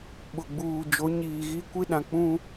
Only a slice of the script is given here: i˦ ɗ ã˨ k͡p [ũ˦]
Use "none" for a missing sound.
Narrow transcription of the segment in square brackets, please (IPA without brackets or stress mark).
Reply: ũ˦